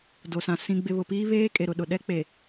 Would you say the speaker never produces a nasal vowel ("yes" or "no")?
no